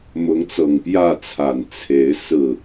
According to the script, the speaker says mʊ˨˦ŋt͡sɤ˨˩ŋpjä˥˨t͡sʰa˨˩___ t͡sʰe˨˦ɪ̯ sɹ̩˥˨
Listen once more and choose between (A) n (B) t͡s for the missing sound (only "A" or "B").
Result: A